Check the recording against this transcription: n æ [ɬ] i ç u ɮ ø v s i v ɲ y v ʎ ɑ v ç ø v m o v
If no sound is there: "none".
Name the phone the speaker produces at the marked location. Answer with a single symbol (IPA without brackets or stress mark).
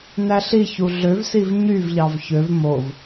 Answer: ɬ